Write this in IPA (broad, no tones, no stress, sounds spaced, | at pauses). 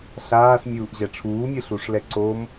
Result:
ɬ aː s mʲ uː ʔ ʑ ɛ ʈ͡ʂʰ uː mʲ ɯ ɬ u ʂ l ɛ ǀ o m